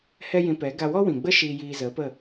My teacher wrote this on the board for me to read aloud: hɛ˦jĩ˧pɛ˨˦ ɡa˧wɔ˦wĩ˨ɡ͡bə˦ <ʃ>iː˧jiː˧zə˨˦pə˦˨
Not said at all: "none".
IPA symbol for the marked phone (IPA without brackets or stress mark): ʃ